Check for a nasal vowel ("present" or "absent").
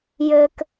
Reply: absent